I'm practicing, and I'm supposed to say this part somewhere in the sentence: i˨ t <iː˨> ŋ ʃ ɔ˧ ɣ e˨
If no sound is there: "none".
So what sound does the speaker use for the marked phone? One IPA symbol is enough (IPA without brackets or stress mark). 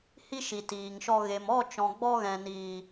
iː˨